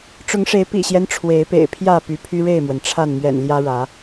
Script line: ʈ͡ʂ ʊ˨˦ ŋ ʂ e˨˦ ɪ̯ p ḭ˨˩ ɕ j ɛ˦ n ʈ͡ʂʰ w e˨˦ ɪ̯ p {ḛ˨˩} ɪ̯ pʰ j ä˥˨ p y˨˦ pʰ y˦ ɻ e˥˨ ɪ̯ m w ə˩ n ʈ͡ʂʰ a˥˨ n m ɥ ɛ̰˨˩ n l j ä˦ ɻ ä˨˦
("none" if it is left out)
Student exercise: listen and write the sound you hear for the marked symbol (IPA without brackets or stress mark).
ḛ˨˩